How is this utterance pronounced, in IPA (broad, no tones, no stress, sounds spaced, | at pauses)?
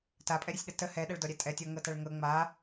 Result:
t a pʼ ɛ ɾʲ ə sʲ ɗ ə t ə h ɛ ɗ ɛ ɭ d ɔ ɾʲ ɛ tʼ ɛ tʲ ɔ ŋ ɤ t a ɭ ŋ ɤ ŋ͡m a